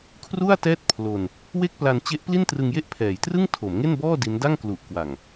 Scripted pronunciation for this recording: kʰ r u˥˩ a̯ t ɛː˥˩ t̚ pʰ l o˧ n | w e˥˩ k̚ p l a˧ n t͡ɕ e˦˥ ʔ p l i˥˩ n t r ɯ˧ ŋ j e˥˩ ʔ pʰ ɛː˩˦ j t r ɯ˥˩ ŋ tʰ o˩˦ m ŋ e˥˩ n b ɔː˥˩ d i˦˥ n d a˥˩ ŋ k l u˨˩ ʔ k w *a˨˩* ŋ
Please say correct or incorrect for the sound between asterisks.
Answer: correct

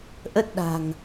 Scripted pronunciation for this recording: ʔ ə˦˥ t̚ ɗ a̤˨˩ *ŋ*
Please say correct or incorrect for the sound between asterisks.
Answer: correct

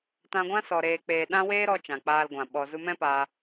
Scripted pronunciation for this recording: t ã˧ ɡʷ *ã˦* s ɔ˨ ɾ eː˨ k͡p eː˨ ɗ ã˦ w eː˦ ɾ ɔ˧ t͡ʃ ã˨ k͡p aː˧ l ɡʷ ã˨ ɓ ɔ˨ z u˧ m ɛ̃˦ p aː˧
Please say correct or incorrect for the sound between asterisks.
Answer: correct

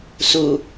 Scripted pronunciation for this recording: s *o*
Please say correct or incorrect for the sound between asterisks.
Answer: incorrect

